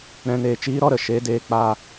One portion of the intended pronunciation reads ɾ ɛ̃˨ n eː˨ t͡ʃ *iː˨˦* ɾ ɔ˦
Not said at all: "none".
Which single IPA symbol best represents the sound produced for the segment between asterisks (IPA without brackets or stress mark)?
iː˨˦